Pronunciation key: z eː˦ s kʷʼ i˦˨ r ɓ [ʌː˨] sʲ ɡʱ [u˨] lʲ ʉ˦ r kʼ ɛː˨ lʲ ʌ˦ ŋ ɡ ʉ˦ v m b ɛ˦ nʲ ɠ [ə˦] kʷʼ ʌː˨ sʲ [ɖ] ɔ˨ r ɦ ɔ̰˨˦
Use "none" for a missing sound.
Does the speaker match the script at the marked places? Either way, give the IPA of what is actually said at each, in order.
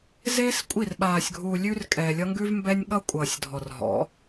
aː˨, u˨, ʌ˦, dʱ

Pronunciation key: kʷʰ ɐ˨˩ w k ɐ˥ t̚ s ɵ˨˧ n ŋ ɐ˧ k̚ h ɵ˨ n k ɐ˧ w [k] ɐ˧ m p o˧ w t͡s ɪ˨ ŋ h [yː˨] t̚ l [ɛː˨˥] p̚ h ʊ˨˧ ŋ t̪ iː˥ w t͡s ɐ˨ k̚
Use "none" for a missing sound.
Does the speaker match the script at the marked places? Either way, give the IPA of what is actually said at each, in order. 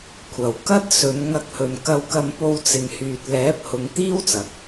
k, yː˨, ɛː˨˥

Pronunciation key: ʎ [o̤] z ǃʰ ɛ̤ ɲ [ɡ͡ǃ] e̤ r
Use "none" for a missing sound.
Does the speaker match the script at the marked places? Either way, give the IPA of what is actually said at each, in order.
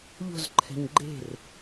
o̤, ɡ͡ǃ

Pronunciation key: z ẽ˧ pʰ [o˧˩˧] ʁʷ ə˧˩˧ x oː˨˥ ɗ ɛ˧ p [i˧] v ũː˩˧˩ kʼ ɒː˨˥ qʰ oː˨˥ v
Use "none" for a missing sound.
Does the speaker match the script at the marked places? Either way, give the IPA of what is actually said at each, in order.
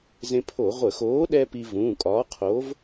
o˧˩˧, i˧

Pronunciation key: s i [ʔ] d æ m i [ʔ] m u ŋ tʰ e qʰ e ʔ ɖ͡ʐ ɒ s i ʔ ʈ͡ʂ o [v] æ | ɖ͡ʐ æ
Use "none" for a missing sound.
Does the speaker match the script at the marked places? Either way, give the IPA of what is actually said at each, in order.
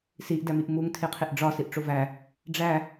ʔ, ʔ, v

